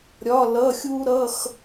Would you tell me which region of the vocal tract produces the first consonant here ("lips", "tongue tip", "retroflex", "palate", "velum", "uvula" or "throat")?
tongue tip